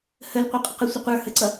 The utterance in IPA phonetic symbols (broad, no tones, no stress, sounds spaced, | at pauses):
h ə l qʷ ʌ qʼ ə q ə sʷ ə qʷ ə˞ h ə ǀ ʌ